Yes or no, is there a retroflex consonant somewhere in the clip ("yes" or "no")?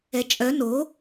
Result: no